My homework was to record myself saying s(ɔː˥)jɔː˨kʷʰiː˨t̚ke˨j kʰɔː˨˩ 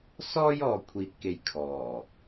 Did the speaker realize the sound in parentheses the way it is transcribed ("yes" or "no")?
yes